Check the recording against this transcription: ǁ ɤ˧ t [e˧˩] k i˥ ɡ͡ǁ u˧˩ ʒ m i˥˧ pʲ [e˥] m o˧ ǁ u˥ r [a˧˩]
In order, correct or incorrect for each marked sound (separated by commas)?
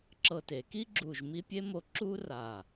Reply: incorrect, correct, correct